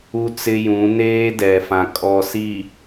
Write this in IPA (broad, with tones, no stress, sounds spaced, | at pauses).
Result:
u˦ t͡s ɪ˦ j ũ˨˦ n eː˦ d ɛ˨ f ã˨ kʼ ɔ˨ s i˨